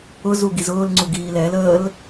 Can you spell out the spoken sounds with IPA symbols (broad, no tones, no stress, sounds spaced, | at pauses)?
ʊ z u ɡ i z ʊː l ŋ͡ǀ u ɡ iː l ɛ l əː l